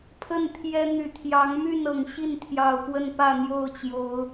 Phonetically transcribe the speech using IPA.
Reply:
pʰə˥˨nt̪ʰjɛ˦n̪y˨˩ t̪ʰjɑ˨˦ŋmy˥˨n ɤ˨˩ŋɕi˥˨nt̪ʰjɑ˨˩ʊ̯ pwə˥˨npä˥˨n̪jo˥˨ʊ̯t͡ɕjo˨˦ʊ̯

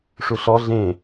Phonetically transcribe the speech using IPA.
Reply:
ʂuɬɔ ɮẽ

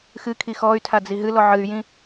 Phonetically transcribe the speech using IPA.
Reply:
xɨkʰi xɔy̯tʰad͡zi ɦɨlɔ ʕɨy̯jĩ

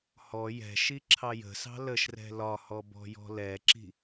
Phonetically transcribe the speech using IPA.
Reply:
hɔ jɛ̤ʃi ǁʰɑjə̤sɑ̤ ləʃrɛ̤ lɒhɔ bɔ̤jɔ̤lɛǁi̤

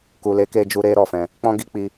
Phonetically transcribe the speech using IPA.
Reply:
ku˨le˨˦ke˧ d͡ʒu˦ɾe˦ɾɔ˦˨fɛ̃˧ | k͡pɔ̃˦ɡi˦k͡pi˧

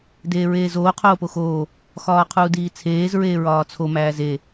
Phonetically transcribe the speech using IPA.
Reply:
deːɹeːzoː qʰoːpoxoː | xɒːqʰuːdiːt͡sʰeːz ɹeːɹɒːt͡sʰo mæːze

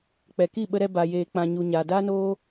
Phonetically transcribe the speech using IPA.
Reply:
k͡pɛ˨ki˦˨ɓə˧ɾɛ˧ ba˨jeː˨k͡pã˨ɲu˨ ɲaː˨daː˦noː˦

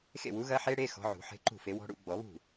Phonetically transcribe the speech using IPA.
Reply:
xḛ˥˩wu˨˥ɣɐ˦˥ħe˦˥ ɽe˧˥˧ xɔ̤˨˥ʕṳ˨˩˦ ħe̤˧˥˧ǃṳ˥˩fe˨˥wɔ̤˦˥ ɽṵ˨˩˦ɡ͡bɔ˨˩˦βṳ˥˩

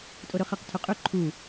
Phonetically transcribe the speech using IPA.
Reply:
tʼoɾɵχɐq tʰɵqʼɵ ǃʰu

